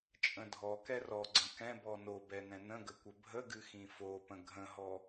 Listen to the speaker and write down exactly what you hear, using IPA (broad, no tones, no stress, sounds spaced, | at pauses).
t͡ʃʼ ə̃ dʱ ɔ k ɛ r ɔ ɡ͡ǀ ə̃ k ɛ̃ b ɔ n o b ɛ n ɛ̃ n ə̃ ɡ ə kʷ ə bʱ ə ɡ ɨ x ĩ f o p ə̃ ɡʱ ə̃ ɦ ɔ